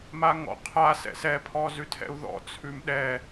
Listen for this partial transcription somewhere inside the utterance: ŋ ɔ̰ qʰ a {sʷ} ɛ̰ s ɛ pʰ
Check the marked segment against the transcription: incorrect: s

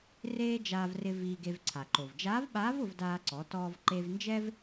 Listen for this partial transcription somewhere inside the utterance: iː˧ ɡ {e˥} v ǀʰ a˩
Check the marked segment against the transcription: incorrect: e˧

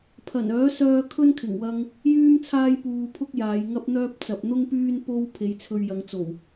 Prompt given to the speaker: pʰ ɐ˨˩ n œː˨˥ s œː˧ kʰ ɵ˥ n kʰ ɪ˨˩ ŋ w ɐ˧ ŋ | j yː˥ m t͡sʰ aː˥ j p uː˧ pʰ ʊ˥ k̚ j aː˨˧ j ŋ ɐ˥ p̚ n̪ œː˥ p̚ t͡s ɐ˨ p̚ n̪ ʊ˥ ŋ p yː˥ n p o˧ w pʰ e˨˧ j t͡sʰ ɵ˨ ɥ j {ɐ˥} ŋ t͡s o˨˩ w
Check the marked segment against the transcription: incorrect: ɐ˨˧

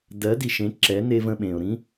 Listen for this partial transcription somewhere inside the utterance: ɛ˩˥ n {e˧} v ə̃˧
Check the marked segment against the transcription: correct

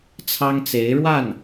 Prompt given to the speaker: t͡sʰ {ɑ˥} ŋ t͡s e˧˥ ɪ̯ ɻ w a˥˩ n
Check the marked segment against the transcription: correct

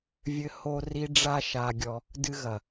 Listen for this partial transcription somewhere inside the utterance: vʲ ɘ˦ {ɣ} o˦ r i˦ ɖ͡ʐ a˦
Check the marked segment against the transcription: incorrect: h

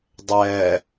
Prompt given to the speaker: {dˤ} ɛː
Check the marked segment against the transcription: correct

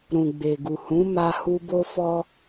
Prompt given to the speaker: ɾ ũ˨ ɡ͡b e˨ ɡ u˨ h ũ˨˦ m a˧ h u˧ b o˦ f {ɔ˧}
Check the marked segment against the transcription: incorrect: ɔ˦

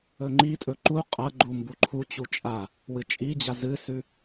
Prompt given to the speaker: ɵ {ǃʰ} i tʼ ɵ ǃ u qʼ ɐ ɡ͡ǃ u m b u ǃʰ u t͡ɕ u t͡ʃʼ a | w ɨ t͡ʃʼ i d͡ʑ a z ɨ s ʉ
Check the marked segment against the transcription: incorrect: ŋ͡ǃ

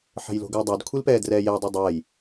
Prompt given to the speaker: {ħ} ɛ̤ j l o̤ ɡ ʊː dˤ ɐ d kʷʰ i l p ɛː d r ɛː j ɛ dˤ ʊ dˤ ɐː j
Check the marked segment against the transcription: correct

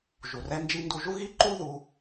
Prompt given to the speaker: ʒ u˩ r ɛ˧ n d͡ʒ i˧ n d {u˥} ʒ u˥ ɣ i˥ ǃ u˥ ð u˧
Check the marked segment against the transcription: incorrect: u˧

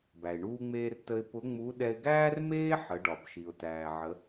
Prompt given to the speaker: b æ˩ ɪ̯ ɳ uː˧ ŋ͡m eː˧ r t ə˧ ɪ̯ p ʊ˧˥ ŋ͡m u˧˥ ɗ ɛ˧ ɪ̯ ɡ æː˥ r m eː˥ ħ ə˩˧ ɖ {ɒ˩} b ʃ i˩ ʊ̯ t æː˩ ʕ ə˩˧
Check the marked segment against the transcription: correct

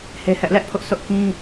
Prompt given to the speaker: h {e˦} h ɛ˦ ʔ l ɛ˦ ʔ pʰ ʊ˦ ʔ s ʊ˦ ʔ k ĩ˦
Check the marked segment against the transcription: correct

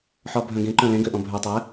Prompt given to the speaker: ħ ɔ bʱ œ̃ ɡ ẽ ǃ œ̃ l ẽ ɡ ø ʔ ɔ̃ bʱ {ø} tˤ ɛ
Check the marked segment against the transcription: correct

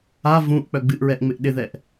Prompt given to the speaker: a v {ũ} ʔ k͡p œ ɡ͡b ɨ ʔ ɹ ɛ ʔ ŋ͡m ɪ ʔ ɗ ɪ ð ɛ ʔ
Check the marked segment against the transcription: correct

